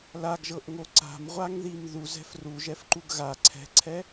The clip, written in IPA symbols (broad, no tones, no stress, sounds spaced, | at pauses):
l a ɡ ʒ ɤ ʔ ŋ o ǀ a̤ m ʁʷ a ŋ ð i m ð u z ɛ̤ f r u ʒ ɛ f ǃ u ɡ ɣ a ǀʰ ɛ̤ ǀʰ ɛ